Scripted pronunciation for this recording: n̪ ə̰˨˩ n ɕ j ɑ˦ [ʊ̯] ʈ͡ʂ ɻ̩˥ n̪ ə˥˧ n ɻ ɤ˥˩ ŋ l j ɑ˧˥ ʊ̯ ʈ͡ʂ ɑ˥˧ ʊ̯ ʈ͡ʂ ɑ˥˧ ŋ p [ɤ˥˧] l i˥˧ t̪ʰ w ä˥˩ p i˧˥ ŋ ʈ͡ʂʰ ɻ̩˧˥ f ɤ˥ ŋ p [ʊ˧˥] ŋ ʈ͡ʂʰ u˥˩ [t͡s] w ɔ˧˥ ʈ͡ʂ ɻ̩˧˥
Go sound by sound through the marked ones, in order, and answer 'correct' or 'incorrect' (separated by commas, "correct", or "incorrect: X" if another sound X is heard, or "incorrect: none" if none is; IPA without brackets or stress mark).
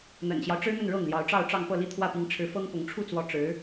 correct, correct, correct, correct